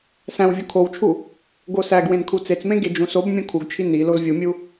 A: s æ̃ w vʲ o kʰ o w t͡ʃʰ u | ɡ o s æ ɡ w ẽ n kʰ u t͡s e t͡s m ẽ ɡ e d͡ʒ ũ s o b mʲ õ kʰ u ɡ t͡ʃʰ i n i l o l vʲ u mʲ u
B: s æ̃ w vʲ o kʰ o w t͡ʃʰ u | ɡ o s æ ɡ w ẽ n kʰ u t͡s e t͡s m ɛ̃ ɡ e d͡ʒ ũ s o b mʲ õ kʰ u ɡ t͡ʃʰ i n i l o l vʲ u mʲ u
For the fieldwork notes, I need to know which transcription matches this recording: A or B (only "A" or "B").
A